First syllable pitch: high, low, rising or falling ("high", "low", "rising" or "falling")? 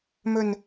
low